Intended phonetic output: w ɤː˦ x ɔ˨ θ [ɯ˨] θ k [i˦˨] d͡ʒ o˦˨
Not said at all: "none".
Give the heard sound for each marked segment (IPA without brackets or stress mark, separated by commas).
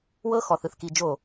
ɯ˨, i˨